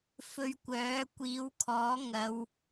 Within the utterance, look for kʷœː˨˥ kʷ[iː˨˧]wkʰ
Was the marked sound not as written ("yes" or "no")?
no